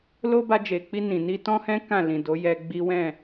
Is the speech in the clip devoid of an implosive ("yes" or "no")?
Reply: yes